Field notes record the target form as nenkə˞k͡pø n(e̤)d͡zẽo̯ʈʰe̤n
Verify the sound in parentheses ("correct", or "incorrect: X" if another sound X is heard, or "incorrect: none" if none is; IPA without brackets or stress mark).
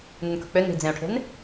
incorrect: i̤